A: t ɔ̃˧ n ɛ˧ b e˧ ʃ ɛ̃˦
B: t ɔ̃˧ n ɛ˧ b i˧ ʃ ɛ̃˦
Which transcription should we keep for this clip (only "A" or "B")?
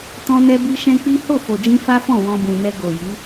B